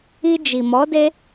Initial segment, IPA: i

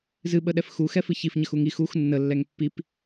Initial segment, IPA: z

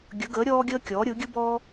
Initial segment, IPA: ɡʲ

